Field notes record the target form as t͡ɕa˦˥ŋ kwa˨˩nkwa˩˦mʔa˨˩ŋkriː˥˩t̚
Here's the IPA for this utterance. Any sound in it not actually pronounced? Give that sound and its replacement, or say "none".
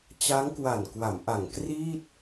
none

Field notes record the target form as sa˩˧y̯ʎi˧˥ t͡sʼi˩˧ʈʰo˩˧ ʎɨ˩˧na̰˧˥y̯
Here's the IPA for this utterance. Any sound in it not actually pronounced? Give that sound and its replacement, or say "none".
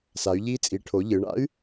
n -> ɳ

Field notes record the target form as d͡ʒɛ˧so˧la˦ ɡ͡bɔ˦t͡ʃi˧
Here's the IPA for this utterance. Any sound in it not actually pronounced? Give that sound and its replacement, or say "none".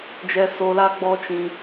i˧ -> ĩ˧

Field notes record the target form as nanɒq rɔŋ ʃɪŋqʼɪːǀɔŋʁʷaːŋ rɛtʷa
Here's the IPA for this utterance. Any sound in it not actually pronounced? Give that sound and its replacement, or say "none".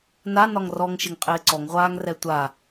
q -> ŋ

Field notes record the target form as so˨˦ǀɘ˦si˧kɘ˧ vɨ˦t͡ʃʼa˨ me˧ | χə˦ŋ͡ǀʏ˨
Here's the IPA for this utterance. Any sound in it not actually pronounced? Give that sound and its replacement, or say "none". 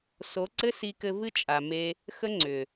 χ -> x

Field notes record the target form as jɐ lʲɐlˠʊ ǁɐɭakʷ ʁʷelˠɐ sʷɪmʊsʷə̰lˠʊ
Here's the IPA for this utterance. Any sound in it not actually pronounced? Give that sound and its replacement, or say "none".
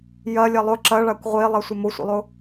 none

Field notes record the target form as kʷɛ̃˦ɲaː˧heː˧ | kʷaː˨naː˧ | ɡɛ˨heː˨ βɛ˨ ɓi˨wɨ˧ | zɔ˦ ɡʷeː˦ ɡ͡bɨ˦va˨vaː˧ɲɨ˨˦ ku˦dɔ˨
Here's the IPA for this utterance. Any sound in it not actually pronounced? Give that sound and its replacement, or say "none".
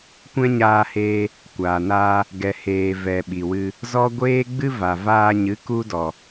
β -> v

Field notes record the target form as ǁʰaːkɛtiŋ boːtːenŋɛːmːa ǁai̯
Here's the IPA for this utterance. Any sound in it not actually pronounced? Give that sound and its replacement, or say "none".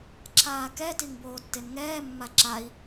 none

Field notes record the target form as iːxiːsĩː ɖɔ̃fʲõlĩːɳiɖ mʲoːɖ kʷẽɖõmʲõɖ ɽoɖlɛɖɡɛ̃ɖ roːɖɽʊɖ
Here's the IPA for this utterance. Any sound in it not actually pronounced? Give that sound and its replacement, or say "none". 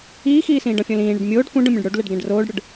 none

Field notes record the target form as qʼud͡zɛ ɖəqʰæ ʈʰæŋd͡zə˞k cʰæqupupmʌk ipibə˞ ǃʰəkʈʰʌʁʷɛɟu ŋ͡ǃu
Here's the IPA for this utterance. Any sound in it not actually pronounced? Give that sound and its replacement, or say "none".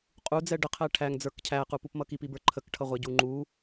none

